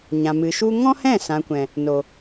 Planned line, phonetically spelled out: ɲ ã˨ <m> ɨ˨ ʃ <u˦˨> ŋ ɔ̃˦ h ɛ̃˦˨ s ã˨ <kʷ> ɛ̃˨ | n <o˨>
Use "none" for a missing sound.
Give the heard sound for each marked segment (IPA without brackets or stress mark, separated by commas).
m, u˦, kʷ, o˨